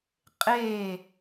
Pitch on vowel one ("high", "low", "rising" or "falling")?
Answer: falling